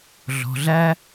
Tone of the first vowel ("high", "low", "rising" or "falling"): low